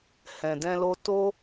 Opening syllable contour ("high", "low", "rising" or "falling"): low